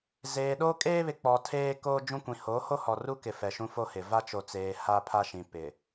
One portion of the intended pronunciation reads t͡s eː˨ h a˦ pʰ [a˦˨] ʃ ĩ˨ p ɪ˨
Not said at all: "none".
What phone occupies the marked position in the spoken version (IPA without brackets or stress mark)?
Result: a˦